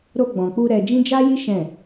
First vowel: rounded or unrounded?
rounded